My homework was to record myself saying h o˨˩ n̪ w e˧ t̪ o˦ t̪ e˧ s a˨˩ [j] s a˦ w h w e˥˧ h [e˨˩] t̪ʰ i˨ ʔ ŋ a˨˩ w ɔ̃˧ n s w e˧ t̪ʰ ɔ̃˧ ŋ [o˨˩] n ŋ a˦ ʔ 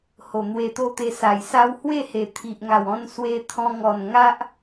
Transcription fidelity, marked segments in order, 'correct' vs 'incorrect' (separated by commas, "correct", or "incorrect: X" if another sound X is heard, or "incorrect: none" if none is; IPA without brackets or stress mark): correct, correct, incorrect: ɔ˨˩